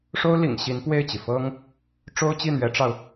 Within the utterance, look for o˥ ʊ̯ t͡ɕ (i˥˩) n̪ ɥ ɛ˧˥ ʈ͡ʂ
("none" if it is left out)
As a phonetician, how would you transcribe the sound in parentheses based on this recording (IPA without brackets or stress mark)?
i˥˩